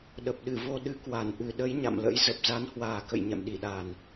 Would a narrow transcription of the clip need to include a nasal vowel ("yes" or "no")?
no